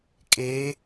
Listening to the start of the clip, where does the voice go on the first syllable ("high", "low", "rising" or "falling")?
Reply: rising